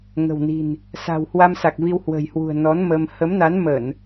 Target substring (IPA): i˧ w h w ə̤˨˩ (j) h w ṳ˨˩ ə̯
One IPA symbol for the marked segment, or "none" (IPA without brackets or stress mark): j